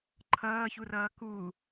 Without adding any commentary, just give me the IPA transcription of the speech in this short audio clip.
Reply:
ǃʰʌːçurʌː ku

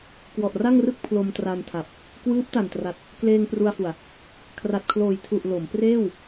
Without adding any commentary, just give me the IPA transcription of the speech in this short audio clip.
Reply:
kwɔ˨˩ʔra˥˩ŋrɯ˥˩k̚ pʰlo˧mtra˧ntʰa˨˩p̚ | kwɯː˦˥p̚ta˨˩ntra˨˩t̚ | kleː˧ŋ pru˧a̯fu˨˩a̯ | kʰra˨˩t̚kʰloː˨˩jtʰu˨˩ʔ lo˩˦m preː˥˩w

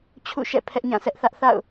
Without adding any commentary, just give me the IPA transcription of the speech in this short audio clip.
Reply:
t͡ɕʰṵ˦˨ʃɛ̰˦˨ pʰɛ˦ʔɲã˦˨sɛ˦ʔθä˦ʔ θa̰˦˨ʊ̯

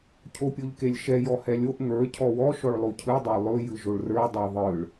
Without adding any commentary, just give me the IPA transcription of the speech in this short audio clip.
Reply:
cʰopʲoʎkelʲʃɛ jɔhɛlʲoʔ ŋə˞ cʰɔwɔ ʃɔɭlˠocʰɯ dˤolˠɵ jɯʒoɭrə˞ dˤoðˤɯɭ

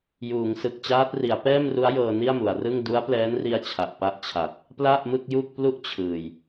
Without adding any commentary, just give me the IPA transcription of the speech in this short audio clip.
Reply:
juː˩˦ŋ sɯ˨˩k̚t͡ɕaː˦˥t̚ ri˩˦a̯pɛː˥˩mru˦˥a̯ jɤː˧ni˥˩a̯mu˩˦a̯rɯ˥˩ŋ du˦˥a̯plɛː˦˥nri˧a̯ t͡ɕʰa˨˩ʔpa˦˥ʔt͡ɕʰa˨˩t̚ | pla˥˩ʔmɯ˥˩k̚ju˥˩k̚ plu˥˩ʔt͡ɕʰɯː˨˩j

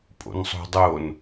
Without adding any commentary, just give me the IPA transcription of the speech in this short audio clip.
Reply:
pʼo̰nsˤo̤dˤon

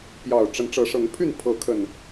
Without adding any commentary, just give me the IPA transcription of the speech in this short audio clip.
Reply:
pjɑ˨˩ʊ̯ʈ͡ʂə˨˦n ʈ͡ʂɤ˨˦ʂɤ˨˦ŋpʰy˥˨n pʰɤ˨˦kʰə˨˩n

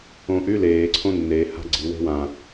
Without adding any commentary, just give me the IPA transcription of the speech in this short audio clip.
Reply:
õʔy leːǀʰõ nːe ha̤ɡ͡ǀi we̤wã

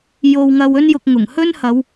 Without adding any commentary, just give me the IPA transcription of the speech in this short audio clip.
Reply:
jo˧wŋɐ˧wɵ˥njʊ˧k̚ ŋʊ˨˩ŋhɵ˥nhɐ˨˧w

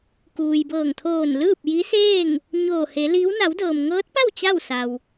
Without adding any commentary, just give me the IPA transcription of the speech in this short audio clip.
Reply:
kuː˩jbɤː˧˩ŋt̪ʰoː˧˩n lɯː˥˨p̚ji˧˥seː˥˨ŋ | ɲoː˧˩he˩˧ li˧˥w na˩˧wdɤː˩mŋɤː˧˥t̚pa˥˨w t͡ɕa˥˨wsa˩w

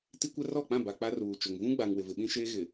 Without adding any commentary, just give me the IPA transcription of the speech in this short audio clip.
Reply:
ti˦kʷɛ˦ rɔ˦˨k͡pã˦˨ ba˨ k͡pa˦ruː˨t͡ʃʊ˨ŋ vũ˦ɡ͡ba˨ŋ wɪ˨vɪ˨ɓĩ˦ʃeː˦ ɣɪ˨

